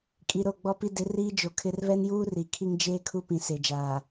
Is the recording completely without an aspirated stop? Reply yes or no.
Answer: no